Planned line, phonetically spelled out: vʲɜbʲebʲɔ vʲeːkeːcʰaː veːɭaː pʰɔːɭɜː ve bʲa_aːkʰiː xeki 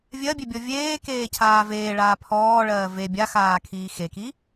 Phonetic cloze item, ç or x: x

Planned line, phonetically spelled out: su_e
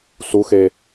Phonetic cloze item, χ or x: x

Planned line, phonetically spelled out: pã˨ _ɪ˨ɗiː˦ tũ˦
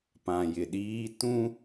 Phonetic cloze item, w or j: j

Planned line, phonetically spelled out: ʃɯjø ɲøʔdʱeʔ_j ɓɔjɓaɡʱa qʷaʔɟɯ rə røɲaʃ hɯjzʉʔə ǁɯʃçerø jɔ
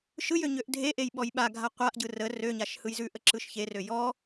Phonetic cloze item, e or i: e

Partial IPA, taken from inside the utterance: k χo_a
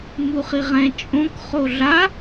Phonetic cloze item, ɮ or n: ɮ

